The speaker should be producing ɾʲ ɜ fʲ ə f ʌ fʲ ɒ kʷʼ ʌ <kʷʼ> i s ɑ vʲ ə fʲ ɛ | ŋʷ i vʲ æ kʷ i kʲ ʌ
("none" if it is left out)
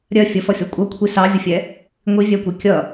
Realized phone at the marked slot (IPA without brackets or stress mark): kʷʰ